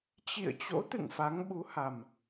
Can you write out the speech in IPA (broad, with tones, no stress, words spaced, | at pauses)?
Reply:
t͡ɕḭ˧˨ə̯t͡ɕo̰˧˥t̪ɨ̰˧˨ŋ fa˨˦ŋɓu˨˦ha˨˩m